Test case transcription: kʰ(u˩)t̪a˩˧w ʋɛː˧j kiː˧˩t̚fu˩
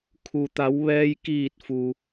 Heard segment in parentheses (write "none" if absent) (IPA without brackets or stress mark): u˩